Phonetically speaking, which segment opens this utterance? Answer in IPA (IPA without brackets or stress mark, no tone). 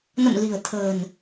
n